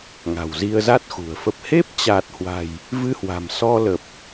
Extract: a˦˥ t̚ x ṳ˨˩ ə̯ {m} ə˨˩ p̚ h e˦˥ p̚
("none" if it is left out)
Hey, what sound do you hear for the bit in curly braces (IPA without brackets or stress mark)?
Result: f